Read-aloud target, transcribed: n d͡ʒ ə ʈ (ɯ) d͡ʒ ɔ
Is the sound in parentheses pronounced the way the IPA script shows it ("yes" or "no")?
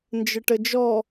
no